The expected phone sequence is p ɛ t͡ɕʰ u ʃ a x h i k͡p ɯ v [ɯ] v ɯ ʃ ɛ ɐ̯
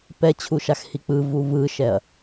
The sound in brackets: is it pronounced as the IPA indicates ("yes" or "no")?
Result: no